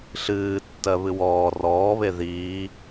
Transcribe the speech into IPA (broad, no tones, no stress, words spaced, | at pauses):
ɬɨːtːɜβɨ wɔː rɔːβe ðiː